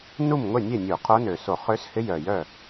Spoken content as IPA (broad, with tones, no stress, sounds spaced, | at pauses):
n u˥˩ m ŋʷ e˥˩ nʲ e˥˩ nʲ u˧˩˧ qʰ o˧˥ n ø˨˩ s o˧˩˧ χ ø˧˥ s h ɪ˧˥ j œ˨˩ j œ˥˩